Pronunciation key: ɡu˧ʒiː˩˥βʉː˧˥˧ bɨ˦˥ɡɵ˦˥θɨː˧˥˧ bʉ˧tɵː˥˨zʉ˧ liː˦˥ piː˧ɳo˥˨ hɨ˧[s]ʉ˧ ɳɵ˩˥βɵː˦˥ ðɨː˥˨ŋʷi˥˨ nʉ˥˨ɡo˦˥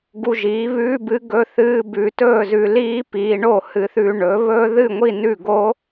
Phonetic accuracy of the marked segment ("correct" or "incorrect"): incorrect